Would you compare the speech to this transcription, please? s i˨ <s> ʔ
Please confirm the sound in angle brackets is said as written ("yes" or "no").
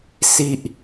no